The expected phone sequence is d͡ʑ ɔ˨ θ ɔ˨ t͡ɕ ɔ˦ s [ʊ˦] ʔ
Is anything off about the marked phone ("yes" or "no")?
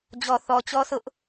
no